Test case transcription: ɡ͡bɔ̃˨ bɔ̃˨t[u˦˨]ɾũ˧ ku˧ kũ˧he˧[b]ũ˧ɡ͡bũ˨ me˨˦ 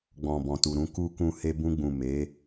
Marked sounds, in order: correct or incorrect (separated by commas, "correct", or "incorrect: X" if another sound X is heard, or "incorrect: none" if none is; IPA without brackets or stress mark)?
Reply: incorrect: u˨, correct